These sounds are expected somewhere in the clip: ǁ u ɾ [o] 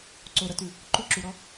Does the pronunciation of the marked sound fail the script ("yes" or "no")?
yes